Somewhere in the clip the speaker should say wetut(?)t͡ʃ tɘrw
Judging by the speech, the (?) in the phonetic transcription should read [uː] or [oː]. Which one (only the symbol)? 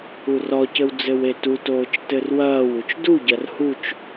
oː